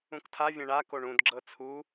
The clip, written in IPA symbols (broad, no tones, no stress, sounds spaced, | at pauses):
ũ k tʰ a vʲ ɛ̃ ɳ a k o ɳ ũ d ɡ͡ǁ ɤ t͡sʰ u